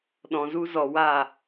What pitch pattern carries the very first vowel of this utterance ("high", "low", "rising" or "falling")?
low